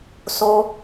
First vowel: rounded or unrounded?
rounded